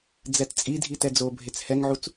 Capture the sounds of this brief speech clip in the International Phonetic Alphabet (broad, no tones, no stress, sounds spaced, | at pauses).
d͡z ɛ t t͡sʼ i dʱ i t ɛ d͡z o bʱ e t͡s h ɛ ŋ ʕ u t͡s